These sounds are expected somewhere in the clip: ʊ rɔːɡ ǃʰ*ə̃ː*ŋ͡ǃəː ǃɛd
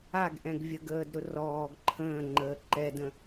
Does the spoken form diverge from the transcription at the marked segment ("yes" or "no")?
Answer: no